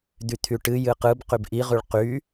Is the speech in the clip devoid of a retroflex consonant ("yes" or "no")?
no